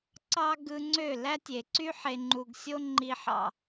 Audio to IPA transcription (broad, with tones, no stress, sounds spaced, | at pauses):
ǀ ɑ˦ ɡ ɯ˧ ŋ͡ǀ ø˦˨ l æ˦ tʲ e˨ ǀ y˦ ħ e˨ ŋ͡ǃ u˨ ɡ sʲ o˦ ŋ͡ǃ i˧ ħ ɑ̰˨